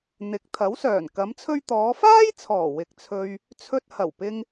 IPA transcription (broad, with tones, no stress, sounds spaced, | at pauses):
n̪ ɪ˨˥ k̚ t̪ʰ ɐ˨˥ w s œː˨˩ n k ɐ˨˧ m t͡sʰ ɵ˧ ɥ t̪ ɔː˨˧ f aː˥ j t͡sʰ ɔː˨˩ w ɪ˨ k̚ t͡sʰ ɵ˧ ɥ | t͡sʰ ɵ˧ t̚ h ɐ˨˩ w p ɪ˧ ŋ